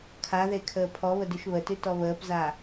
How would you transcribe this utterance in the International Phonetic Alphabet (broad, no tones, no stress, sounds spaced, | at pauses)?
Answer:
kʰ a ð e kʰ əː pʰ ɔ β ə d ʉ ʃ β ə t ʉ t ɔ β əː p z a